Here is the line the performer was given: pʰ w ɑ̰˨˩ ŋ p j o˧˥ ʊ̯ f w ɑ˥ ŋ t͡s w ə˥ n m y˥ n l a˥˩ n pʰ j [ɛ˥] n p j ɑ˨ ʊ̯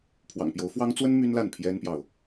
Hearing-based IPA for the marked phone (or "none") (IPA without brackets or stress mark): ɛ˥